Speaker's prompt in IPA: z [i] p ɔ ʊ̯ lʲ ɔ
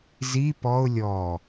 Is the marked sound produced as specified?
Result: yes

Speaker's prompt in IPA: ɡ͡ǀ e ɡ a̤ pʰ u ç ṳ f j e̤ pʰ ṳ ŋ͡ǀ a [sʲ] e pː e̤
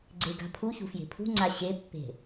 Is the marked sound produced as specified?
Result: no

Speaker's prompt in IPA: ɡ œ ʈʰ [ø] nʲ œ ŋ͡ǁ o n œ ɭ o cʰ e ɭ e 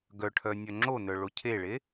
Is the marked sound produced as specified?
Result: no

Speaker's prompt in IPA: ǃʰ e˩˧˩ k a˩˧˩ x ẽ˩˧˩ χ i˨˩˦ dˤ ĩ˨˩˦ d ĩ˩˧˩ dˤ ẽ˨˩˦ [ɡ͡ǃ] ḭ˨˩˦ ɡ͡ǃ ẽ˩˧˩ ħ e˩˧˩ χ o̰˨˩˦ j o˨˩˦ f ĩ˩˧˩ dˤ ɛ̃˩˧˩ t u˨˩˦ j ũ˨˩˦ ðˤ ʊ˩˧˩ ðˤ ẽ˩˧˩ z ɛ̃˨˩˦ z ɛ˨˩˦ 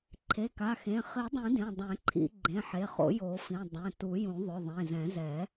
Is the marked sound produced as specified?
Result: no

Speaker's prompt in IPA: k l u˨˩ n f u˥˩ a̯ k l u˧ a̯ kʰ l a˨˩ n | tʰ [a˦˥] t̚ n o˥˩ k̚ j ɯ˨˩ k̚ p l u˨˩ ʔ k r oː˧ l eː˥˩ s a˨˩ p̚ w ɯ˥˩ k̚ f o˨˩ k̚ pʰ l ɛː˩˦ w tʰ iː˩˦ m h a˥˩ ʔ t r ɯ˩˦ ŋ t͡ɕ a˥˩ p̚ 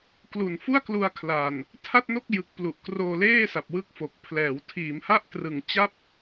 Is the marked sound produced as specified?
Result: no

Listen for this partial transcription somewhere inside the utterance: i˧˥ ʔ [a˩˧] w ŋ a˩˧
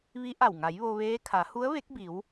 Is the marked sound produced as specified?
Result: no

